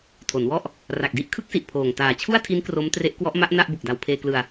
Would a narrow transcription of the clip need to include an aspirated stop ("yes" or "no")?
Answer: yes